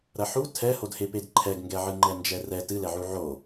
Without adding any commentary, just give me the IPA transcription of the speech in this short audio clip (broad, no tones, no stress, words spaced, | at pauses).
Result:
ɾɐħu tʰɛhodheped ǃʰɛɡŋɡɛʕɨŋ͡ǃɛ nd͡ʒɛrɛ tɨlɛʕu ʕo